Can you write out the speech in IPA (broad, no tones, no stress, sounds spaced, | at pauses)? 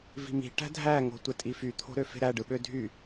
v i̤ m i̤ ʈ æ̤ dʱ æ ŋ o̤ tʷ e tʼ i f y t̪ʰ o̤ ɾ ø f e̤ ɾ æ ɖ ɯ ɓ ø dʱ y